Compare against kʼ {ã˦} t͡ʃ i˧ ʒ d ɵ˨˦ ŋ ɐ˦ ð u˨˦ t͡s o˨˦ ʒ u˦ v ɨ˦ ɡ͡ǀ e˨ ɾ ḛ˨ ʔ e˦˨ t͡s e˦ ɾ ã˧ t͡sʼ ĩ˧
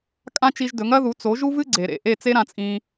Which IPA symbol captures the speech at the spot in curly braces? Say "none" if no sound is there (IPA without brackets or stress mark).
ã˦